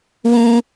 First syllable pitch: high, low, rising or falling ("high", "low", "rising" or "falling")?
high